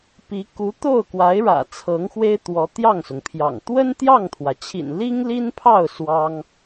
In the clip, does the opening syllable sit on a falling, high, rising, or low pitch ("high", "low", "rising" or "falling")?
rising